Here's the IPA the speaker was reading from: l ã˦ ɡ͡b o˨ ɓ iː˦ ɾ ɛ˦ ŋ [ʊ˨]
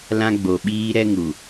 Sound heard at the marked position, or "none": u˨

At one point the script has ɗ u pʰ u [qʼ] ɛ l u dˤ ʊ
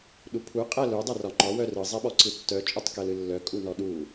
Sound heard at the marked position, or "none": qʼ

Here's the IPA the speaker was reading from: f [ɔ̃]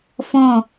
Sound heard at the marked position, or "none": ɔ̃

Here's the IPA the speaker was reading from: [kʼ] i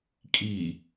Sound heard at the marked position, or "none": kʼ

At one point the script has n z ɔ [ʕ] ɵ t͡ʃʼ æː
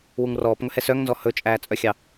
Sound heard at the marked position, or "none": h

